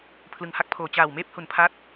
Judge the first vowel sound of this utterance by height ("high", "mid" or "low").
high